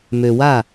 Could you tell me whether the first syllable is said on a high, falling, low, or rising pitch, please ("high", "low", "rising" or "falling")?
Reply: low